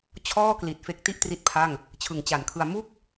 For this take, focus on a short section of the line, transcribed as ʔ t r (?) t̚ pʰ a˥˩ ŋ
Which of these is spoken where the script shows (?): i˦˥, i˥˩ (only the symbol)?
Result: i˦˥